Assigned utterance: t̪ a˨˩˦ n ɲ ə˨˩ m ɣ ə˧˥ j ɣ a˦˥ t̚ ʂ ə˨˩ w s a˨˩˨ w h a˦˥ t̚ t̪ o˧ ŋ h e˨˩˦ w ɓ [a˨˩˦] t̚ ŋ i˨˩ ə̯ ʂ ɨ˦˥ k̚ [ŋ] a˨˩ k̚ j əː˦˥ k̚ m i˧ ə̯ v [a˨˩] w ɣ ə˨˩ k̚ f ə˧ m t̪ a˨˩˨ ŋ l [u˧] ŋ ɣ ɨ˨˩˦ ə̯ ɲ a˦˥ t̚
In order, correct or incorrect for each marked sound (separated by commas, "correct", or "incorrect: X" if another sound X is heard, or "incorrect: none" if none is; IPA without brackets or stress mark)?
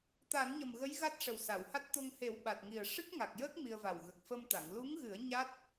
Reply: incorrect: a˨˩, correct, correct, incorrect: u˧˥